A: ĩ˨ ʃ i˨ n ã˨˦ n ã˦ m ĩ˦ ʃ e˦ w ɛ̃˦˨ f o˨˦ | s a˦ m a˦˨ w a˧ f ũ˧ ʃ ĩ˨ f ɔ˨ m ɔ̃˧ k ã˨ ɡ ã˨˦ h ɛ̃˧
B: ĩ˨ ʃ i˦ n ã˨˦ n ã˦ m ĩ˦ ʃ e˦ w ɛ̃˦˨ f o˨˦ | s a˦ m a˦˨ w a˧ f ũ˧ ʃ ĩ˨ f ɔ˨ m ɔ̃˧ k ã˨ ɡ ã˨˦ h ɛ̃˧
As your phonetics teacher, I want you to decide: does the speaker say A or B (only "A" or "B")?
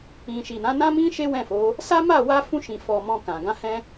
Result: A